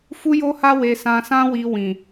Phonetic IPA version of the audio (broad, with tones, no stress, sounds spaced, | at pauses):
f u˦ j o˦ h a˦ w e˧ s ã˧ s ã˦ w i˧ w ĩ˨